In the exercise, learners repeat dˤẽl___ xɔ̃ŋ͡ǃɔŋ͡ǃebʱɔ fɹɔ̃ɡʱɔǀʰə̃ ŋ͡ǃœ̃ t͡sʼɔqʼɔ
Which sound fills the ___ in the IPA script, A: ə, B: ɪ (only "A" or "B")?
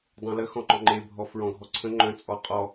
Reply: A